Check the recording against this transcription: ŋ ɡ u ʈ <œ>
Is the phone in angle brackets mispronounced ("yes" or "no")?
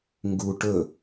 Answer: yes